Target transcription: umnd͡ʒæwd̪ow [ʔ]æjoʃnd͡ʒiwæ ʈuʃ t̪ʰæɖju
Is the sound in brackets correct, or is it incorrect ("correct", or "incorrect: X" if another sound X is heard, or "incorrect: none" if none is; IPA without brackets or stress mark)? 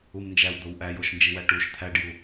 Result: correct